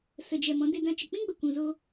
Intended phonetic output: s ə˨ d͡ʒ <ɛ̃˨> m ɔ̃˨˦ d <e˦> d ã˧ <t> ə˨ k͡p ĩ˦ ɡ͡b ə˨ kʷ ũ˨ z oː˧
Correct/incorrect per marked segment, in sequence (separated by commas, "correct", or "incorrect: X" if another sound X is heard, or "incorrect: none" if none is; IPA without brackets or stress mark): incorrect: ɛ˨, incorrect: e˧, incorrect: t͡ʃ